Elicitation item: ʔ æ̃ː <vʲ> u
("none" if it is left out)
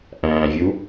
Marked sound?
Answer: vʲ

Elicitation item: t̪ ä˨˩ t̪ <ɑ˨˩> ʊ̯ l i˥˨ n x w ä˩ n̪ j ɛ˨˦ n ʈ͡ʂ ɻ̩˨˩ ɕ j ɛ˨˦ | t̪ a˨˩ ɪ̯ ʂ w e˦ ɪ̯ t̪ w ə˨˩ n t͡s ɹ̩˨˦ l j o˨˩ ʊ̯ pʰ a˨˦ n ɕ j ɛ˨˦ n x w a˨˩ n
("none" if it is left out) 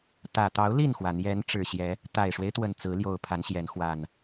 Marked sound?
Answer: ɑ˨˦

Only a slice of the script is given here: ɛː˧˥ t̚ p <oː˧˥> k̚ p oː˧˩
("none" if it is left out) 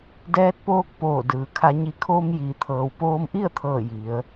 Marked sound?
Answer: oː˧˥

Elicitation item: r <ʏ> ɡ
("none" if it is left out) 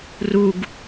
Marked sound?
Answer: u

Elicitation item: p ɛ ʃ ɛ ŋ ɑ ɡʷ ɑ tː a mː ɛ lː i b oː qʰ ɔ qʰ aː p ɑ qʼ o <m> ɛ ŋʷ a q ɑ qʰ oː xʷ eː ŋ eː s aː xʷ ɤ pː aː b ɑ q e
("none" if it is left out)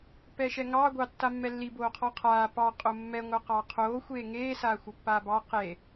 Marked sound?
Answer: mː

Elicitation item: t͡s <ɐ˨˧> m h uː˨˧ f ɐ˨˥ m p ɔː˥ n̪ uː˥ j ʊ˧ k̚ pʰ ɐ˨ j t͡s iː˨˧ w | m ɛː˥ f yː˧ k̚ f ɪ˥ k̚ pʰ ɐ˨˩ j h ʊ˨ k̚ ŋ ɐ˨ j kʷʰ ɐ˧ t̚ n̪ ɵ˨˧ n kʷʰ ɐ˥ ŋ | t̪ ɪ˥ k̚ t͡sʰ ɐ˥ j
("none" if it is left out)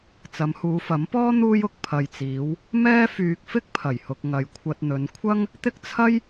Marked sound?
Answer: ɐ˨˧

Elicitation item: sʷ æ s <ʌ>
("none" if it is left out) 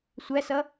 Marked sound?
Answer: ʌ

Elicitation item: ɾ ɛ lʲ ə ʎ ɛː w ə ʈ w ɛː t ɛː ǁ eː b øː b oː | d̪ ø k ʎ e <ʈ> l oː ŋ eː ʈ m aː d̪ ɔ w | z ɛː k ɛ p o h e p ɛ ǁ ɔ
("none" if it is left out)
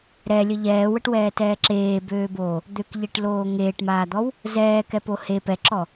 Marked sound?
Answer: ʈ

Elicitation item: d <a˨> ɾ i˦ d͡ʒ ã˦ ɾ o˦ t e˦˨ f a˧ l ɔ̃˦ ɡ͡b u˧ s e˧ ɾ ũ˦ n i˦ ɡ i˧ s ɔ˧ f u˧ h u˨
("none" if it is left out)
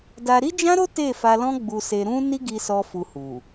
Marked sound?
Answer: a˧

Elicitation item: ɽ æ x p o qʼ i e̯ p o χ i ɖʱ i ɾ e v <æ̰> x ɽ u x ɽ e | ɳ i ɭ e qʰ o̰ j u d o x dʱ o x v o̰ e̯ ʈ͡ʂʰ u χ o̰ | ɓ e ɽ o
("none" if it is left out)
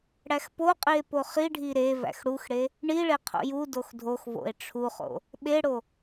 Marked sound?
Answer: æ̰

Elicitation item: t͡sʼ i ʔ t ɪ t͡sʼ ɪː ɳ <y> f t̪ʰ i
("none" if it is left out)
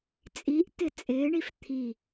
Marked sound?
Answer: i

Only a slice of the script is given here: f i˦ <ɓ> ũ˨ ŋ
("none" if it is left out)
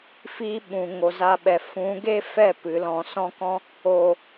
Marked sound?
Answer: ɓ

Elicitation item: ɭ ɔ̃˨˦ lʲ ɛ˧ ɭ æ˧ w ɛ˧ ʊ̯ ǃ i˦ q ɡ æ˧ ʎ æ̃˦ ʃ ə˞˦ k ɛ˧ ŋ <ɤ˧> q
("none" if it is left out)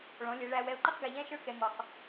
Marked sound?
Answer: ɔ˧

